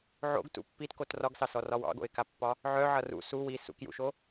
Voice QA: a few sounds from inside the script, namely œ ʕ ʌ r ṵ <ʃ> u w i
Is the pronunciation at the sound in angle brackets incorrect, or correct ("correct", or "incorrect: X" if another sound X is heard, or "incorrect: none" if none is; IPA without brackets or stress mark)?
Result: incorrect: s